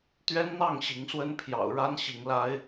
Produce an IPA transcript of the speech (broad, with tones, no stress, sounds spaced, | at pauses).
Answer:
t̪ ɥ ɛ˦ n n̪ ɑ˥˨ ŋ ɕ i˨˦ ŋ s w ə˦ n pʰ j ɑ̰˨˩ ʊ̯ ɻ a˦ n ɕ i˨˦ ŋ l a˦ ɪ̯